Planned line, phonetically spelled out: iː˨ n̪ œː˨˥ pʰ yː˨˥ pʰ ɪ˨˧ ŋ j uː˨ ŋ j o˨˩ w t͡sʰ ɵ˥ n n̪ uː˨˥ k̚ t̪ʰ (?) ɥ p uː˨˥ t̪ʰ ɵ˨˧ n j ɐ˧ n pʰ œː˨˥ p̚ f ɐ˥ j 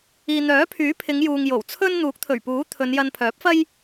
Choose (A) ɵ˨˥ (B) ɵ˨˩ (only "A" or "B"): B